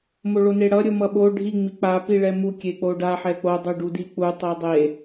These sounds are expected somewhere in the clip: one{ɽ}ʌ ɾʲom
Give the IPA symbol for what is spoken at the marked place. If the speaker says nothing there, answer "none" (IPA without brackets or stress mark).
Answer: ɽ